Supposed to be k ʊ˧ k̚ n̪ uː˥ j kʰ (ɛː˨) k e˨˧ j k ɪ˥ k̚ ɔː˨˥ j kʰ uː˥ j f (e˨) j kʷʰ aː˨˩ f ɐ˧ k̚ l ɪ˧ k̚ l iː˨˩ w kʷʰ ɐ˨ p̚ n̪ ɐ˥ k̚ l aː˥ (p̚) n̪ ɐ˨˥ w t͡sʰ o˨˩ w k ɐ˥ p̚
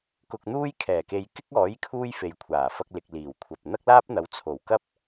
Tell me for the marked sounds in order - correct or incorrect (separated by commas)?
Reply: incorrect, correct, correct